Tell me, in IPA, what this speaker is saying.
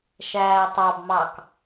ʃæːtˤɑbmɑk

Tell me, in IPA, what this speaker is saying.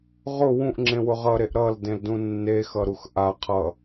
ʁʊ wũʔŋ͡ǁẽwʊ ʁʌɾeʔ ɾʌldẽldũ nːexʌɾux ʔaqʰʌ

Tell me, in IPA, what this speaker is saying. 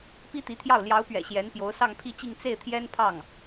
pi˥t̪i˧˥t̪ʰjɑ˥˩ʊ̯ ljɑ˧˥ʊ̯pɥɛ̰˨˩ ɕjɛ˧˥n pjo˧˥ʊ̯sɑ˥˧ŋpʰi˥˧t͡ɕi˥˧ŋ t͡se˥˩ɪ̯t̪ʰjɛ˥npʰɑ˥˩ŋ

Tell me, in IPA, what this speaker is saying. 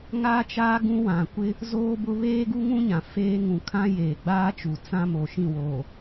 ŋaː˦t͡ʃaː˦ ɡũ˦wã˨ kʷɪ˦ | zoː˦bʊ˦ βeː˦ɡu˦ŋũ˦ɲã˨ feː˦ ŋũ˨kʰã˦ jeː˨ɡ͡baː˦t͡ʃu˨ t͡sã˦mo˨ ʃĩ˦˨woː˨

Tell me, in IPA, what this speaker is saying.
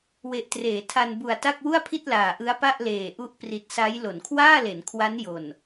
we˨˩ʔtreː˩˦tʰa˧n bu˨˩a̯ta˥˩k̚ wu˥˩a̯pʰi˥˩t̚laː˨˩ʔɯ˦˥a̯ pa˥˩ʔleː˨˩ʔu˦˥ʔ pri˨˩t̚sa˦˥j lo˩˦nkʰwaː˥˩le˩˦n kʰwa˦˥njo˨˩n

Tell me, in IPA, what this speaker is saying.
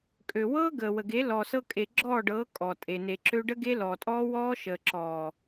kʼø˨wɤː˦ ɡəː˨wə˨ɡe˨˦ lɔ˨sɤ˧kʼe˨ ɡ͡ǁɔː˦˨ɖɤː˨˦ kʼɔ˨tʼe˨ ne˨ǁø˧ɖə˦ ɡe˦ lɔː˨tʼɔː˦wɔː˦ ʃəː˨ǁɔː˨

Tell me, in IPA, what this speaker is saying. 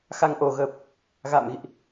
xa˧ŋʔo˨˩ ɣəː˨˩p̚ | ɣa̰ː˧˨mɣḭ˧˨ʔ

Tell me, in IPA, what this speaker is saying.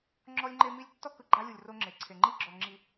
ŋ͡ǁɔ˦lʲŋ͡ǃe˦mi˦lʲ tːɔ˦kɯ˨ɡ͡ǃa˦lʲu˨lʲ ro˦ŋ͡ǁe˨ ǀʰe˨ŋ͡ǃi˦ɡ͡ǁɔ˨ ŋ͡ǁi˨

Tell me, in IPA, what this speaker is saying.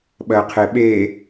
ɓɜqʰeɓe

